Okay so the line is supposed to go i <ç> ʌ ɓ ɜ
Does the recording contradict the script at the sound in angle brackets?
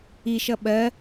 yes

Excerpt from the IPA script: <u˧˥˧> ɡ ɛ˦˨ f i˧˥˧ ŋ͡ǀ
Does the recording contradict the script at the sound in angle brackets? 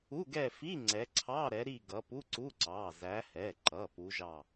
no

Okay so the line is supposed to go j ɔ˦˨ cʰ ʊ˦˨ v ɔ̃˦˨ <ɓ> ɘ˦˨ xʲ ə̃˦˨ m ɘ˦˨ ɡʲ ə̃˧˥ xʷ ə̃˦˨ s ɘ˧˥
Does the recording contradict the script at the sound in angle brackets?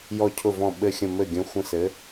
no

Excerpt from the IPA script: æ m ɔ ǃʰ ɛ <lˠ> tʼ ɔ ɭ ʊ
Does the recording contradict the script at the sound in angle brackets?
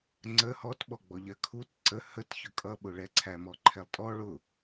no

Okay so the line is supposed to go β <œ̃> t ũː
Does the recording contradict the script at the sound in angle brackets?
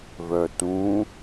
yes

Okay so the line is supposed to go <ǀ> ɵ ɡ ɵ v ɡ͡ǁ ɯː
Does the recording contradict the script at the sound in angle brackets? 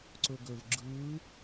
no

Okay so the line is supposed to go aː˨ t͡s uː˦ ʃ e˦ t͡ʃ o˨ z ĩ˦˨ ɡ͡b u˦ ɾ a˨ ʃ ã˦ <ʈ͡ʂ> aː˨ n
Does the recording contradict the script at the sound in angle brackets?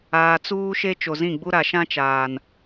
yes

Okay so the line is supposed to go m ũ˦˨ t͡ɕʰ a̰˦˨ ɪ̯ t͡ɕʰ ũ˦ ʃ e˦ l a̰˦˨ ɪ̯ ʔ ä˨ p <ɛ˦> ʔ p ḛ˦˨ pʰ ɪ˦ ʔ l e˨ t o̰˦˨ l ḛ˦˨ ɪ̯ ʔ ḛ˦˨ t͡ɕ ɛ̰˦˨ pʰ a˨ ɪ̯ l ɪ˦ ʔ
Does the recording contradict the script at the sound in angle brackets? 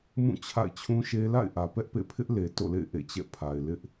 no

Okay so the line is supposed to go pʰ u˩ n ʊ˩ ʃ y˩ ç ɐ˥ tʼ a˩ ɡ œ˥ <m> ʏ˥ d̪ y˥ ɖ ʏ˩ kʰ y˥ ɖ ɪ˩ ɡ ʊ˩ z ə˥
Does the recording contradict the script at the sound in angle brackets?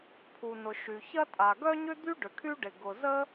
yes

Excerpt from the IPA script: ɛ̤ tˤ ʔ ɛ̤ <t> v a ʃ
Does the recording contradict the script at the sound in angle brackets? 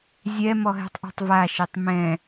yes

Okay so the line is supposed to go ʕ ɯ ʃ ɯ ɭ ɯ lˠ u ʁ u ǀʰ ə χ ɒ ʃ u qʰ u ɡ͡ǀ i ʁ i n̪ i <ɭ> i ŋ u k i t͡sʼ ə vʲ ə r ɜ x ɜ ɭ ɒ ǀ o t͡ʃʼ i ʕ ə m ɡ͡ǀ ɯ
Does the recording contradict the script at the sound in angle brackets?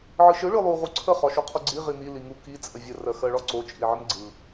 yes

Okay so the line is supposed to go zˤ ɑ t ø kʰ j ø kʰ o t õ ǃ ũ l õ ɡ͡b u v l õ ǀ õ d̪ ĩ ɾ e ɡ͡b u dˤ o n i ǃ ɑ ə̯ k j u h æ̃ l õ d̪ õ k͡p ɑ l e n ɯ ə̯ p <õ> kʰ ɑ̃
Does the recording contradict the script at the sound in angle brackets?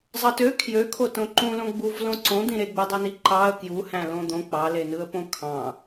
no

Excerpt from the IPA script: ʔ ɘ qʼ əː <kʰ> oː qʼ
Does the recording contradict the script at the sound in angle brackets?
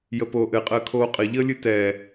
no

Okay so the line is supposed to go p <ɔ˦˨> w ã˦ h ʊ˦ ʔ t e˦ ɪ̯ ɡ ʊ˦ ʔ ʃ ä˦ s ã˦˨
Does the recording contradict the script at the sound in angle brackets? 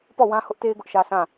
no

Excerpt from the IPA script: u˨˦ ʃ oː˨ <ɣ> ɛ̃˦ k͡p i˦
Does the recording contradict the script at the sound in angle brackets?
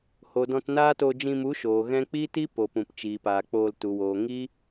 no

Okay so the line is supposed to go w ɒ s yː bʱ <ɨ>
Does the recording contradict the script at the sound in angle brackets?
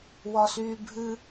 no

